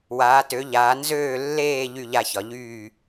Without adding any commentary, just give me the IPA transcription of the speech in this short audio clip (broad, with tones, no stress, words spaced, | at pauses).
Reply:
waː˨˦tø˨˦ʎaː˨˦ nzøː˥˧lːeː˥˧ ʎy˥˧ʎa˥˧çɒ˨˦ ʎyː˥˧